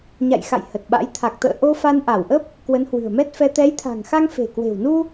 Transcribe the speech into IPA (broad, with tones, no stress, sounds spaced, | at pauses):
ɲ a̰˧˨ j x a̰˧˨ j h ə˨˩ t̚ ɓ a̰˧˥ j t̪ʰ a˨˩ k̚ t̪ ə̰ː˧˨ ʔ o˧ f a˧ n ʔ a˧˩ w ʔ ə˦˥ p̚ | k w ə˨˦ n h w ɨ̤˨˩ ə̯ m ɛ˦˥ t̚ f ɛ˧ t̪ ɛ˨˦ j t̪ʰ a̤˨˩ ŋ x a˧ ŋ f e̤˨˩ k w e̤˨˩ w n u˧